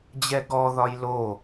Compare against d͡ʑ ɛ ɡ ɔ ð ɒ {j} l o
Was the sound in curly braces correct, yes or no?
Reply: yes